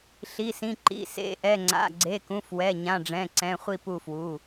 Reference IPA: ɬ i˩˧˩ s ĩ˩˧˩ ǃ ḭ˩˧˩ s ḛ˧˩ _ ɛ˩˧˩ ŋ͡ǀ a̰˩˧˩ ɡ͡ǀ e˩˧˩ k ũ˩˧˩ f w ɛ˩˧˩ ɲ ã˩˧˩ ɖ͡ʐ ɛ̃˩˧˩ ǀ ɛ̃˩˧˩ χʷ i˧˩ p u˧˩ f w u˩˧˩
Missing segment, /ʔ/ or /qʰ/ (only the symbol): ʔ